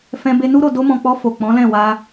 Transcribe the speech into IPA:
fɛ̃˧ be˧nu˦ɾo˦˨ do˧mɔ̃˨k͡pɔ˧ fo˨ k͡pɔ̃˨˦lɛ̃˦˨wa˧

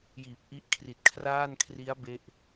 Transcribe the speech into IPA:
jiː˨˩p̚ʔi˦˥ʔ kʰri˨˩t̚kʰraː˥˩nkʰri˦˥a̯ be˥˩ʔ

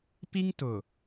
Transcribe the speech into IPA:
pi˦ŋtʊ˨

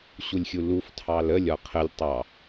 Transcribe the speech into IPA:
ɕulʲxʲuluf tʰɑləlʲ ɒqʰəlʲ tˤɑ

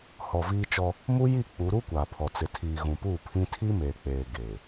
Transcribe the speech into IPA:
hɔ˨viː˦t͡ʃɔ˦ | mu˦ji˦˨ k͡pu˨˦ɾu˦ kʷaː˨pʰɔ˨ t͡sɪ˨tʰiː˨ɣũ˨puː˦˨ pʰĩ˦ tʰi˦meː˨k͡peː˨ ɡeː˨

